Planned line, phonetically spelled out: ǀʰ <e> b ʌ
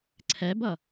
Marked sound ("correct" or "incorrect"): incorrect